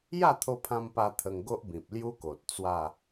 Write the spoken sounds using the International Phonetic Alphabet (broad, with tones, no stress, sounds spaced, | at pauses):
j a˥˧ t̪ʰ o˧ pʰ ã˧ m p a˧ t̪ʰ ə˧ ŋ ɡ o˦ ʔ b ĩ˨ p̚ l j u˦ k o˨ t̚ t͡s w a˥˧